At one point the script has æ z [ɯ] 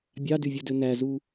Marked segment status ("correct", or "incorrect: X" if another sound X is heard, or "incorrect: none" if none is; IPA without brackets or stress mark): incorrect: u